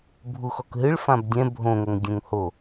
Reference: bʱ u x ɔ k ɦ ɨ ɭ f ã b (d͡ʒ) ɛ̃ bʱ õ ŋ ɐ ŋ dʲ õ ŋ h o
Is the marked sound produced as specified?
no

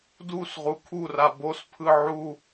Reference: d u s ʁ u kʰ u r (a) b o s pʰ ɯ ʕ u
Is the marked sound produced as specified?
yes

